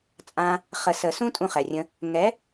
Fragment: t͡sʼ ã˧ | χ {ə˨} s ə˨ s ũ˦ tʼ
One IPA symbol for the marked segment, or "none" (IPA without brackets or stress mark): ə˨